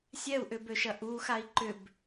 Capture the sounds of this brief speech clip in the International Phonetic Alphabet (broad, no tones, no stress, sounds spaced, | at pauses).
sʲ ɛ u̯ ʔ ʏ b ø ʃ ɐ ʔ u x a i̯ ǃ ʏ b